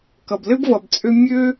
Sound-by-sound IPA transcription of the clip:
kʌ˩blɘ˥bvʌ˩b t͡sʼø˥ mʲø˥

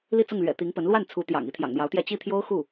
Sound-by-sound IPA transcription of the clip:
li˥˧t͡sʊ˥˩ŋlɥɛ̰˨˩ t̪i˧˥ŋpə˧˥n lwa˥˩n t͡sʰu˧˥ t̪jɑ̰˨˩ŋ i˧˥t̪ʰjɑ̰˨˩ŋn̪jɑ˧˥ʊ̯t̪jɛ˥˧ t͡ɕi˥˩t̪ʰjo˥ʊ̯ xu˥˩

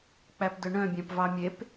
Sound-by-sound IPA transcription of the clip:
k͡pæpdɵɳœ̃ bʲæ̃pvɑmʲep

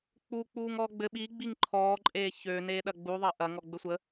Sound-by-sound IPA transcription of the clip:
k͡puk͡puːŋ ɔːɡ͡bɘ ɓiɡ͡biŋ ǃʰɔːǃʼeː çø neːɗɐɡ͡bu ðˤɐʔɐ ŋɔɡ͡bɘsʷə

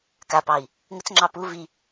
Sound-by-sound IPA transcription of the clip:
kapɑi̯ | ŋət͡sŋ͡ǁɑ pu vi

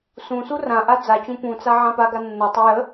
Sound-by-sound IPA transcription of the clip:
sũsu rãʔa d͡zat͡ɕũ pũt͡sa ʕãpaɡa nːətˤə jə

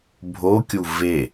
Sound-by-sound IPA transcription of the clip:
bʱokʲu ve

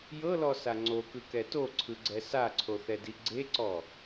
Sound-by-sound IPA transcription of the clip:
jɤlɔsa ŋ͡ǀokɯkɛ toǀʰɯɡ͡ǀɛ saǀʰoθɛdi ɡ͡ǀeǀɔ

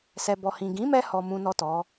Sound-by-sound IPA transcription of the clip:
sɛ˨bɔ˨ hĩ˨ɡĩ˨˦mɛ˧ hɔ˨ mũ˨nɔ˨ tɔ˨˦

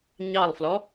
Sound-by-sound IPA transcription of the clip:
ɲɑlˠflɔ

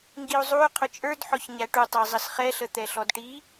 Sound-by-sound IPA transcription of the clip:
ŋɡiu̯zˤuy̯ qʰʊt͡ʃʼə˞dħɔç ɲæʈutˤæ zˤəsχɛɬə t̪ɛɬɔdʈi

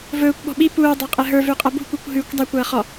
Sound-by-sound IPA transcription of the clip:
vɵːkʷɓɔ̤ ɓi puːdˤɐ qʼɛɦə˞vʉ qʼɐbṳkʷikʷ ɦʉkʷ dˤakʷɐː χɔ

